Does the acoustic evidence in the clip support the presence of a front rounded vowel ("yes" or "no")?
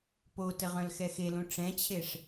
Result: yes